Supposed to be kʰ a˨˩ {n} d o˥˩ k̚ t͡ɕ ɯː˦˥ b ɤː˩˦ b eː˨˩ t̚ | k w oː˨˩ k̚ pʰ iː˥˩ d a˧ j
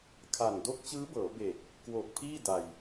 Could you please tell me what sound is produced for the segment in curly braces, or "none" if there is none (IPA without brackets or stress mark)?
n